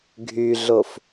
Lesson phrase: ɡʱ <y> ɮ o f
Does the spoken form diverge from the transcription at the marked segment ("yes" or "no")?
no